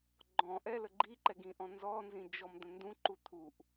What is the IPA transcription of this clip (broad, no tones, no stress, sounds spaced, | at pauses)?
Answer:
ɡ͡ǃ ɔ̃ ʔ ɛ l ə ɡ͡ǃ i ǃ ɛ ɡ ĩ ʔ ɔ̃ n z ɔ n z ĩ d͡ʒ ɔ m d̪ ə̃ n d ũ ǃ u t̪ʰ u ʔ